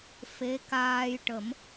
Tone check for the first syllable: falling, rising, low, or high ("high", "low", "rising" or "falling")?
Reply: rising